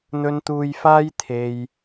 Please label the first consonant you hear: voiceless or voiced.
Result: voiced